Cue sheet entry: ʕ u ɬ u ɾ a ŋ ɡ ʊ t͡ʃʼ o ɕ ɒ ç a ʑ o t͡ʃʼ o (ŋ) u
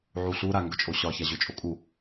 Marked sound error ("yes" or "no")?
yes